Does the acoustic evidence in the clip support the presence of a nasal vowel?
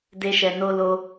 no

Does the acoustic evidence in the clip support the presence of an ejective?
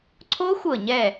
no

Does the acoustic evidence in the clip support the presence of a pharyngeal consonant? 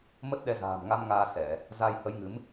no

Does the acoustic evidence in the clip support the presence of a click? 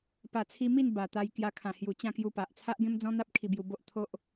no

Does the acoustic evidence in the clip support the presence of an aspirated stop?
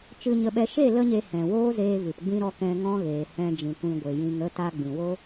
no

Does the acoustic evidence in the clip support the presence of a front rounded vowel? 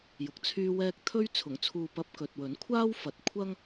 yes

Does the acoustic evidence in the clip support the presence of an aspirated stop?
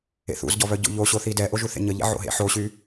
no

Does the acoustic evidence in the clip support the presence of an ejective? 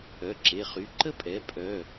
yes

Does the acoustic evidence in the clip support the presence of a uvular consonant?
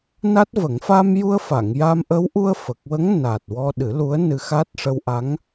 no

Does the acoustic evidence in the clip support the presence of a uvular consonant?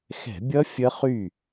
yes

